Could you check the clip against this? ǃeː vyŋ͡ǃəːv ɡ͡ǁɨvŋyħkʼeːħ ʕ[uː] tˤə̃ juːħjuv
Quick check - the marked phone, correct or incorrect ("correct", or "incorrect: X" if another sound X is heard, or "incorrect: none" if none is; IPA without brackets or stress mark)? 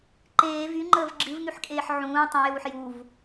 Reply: incorrect: ũː